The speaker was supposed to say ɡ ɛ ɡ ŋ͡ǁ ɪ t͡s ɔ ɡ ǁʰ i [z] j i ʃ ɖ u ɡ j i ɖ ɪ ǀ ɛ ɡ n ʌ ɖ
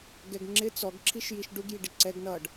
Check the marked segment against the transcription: incorrect: ʃ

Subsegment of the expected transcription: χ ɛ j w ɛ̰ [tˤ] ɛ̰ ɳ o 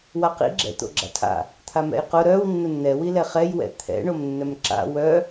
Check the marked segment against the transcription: incorrect: t̪ʰ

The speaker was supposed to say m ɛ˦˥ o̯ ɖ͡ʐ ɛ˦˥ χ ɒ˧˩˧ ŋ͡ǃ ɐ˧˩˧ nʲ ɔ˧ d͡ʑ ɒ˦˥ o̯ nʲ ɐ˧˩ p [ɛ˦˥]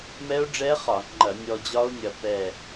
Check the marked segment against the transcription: incorrect: ɛ˧˩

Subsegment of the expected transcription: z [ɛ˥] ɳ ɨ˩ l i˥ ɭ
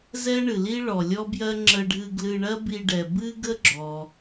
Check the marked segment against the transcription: correct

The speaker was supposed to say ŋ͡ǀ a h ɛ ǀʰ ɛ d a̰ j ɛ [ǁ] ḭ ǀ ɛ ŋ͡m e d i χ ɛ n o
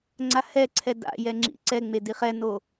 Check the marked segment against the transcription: incorrect: ŋ͡ǁ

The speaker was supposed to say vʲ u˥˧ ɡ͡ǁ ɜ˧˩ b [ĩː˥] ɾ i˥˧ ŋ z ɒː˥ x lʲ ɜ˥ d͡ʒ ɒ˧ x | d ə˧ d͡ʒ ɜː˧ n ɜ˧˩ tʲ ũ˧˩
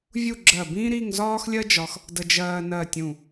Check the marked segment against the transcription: correct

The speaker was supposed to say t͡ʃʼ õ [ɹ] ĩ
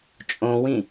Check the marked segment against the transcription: incorrect: w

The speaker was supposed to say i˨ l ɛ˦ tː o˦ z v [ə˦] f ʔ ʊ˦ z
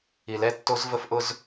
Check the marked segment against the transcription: correct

